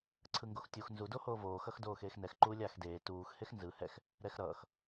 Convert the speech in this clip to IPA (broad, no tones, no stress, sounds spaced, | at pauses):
ǀʰ ɯ ŋ ɡ o x tʲ u x n z u d o h oː v oː x ʌ x d oː x eː x n ɛ x ǃ uː lʲ aː x d eː t uː x h e x n z ɯ h ɛ x | ɾ ɛ x ɾ ʌː x